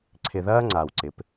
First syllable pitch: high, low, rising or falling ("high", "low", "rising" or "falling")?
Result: low